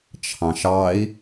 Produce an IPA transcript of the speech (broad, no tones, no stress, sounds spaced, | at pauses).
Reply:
t͡ʃʰ ɑ̃ ʃ ɑ i̯